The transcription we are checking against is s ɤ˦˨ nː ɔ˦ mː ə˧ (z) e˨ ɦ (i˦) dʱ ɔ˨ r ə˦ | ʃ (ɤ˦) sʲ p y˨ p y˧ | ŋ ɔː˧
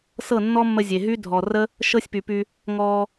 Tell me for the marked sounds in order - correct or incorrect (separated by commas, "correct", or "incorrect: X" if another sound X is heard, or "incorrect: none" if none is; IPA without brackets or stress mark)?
incorrect: zʲ, incorrect: y˦, correct